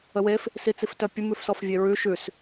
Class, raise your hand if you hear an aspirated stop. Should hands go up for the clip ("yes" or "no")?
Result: no